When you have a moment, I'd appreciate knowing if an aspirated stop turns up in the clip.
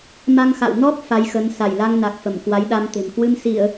no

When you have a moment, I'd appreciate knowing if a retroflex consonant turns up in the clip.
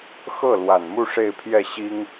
yes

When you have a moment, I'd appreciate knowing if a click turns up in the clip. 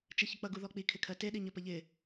no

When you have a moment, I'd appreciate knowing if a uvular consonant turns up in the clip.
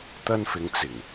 no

